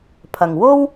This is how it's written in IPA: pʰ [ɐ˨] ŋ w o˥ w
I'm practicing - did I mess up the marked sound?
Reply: no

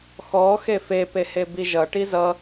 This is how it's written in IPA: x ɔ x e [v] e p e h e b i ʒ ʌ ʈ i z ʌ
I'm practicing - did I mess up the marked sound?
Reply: yes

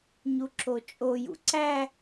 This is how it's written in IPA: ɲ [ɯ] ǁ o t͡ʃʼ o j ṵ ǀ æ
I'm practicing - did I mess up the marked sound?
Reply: yes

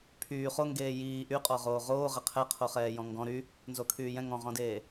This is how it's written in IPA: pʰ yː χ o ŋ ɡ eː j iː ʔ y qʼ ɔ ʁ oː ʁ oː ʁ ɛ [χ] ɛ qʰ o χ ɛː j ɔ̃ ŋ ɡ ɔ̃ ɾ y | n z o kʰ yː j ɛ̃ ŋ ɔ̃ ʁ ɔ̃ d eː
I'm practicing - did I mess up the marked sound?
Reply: yes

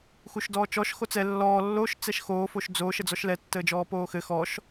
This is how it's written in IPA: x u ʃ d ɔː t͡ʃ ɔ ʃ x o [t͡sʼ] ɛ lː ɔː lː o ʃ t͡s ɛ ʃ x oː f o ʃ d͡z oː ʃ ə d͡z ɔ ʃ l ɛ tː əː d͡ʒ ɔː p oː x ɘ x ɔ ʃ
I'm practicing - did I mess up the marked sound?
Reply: yes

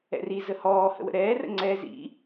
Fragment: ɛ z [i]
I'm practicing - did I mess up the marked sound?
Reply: yes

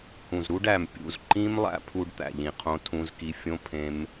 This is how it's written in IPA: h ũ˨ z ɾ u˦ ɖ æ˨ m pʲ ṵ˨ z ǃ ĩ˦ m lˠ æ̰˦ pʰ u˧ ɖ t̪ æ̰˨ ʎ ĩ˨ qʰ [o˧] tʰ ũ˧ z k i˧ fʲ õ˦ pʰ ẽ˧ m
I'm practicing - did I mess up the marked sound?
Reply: yes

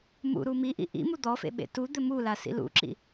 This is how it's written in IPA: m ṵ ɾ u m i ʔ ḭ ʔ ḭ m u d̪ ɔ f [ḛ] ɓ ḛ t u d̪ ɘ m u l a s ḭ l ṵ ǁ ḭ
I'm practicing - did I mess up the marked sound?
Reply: no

